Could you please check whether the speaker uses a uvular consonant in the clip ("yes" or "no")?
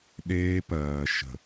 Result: no